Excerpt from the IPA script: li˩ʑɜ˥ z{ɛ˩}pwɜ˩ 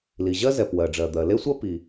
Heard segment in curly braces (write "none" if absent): ɛ˩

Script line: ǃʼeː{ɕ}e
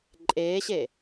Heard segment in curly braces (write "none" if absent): ɕ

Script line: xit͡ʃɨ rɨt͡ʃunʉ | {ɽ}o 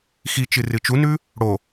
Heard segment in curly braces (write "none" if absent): ɽ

